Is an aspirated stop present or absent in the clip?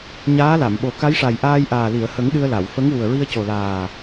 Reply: absent